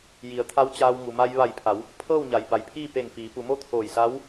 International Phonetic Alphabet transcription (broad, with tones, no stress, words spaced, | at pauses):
ji˩˧ə̯t̪ʰa˧˥wt͡ɕaː˧w ŋu˩ma˧j ʋa˧˩jpʰa˩˧w | pʰɤː˥˨wɲa˩˧j ba˩jpʰiː˥˨ pe˧˩ŋfiː˩˧pu˩˧mo˥˨ t̪ʰoː˧˩jsa˧˥w